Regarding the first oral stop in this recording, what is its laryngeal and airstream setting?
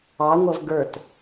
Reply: plain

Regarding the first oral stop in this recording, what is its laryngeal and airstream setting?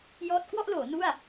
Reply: plain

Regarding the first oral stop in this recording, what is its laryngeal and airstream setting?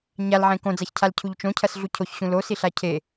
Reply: plain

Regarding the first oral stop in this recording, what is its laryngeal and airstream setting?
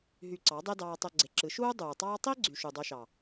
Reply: click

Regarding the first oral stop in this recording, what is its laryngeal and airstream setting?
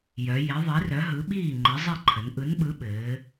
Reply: implosive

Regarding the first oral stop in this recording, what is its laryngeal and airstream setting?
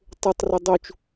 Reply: plain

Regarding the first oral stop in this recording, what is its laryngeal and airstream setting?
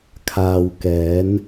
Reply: aspirated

